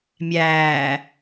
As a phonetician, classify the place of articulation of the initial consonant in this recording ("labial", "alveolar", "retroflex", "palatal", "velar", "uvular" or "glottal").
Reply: labial